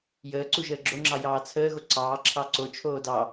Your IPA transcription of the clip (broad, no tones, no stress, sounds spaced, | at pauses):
j əː ǀ u ʒ əː ɡ͡ǁ o ŋ͡ǁ ɑ j ɑː t͡sʰ əː ɣ o ǀ ɑː ǁʰ ɑ ǀ o t͡ʃʰ oː d ɑ